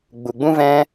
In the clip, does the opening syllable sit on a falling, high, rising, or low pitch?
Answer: low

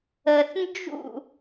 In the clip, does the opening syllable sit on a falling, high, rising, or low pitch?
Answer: low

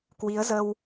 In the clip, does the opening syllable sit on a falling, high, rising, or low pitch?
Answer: rising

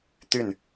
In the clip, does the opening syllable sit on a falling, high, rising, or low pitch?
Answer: falling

